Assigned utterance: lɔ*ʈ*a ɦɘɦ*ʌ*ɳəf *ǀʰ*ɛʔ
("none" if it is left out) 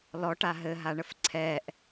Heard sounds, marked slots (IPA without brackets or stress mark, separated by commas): ʈ, a, ǀʰ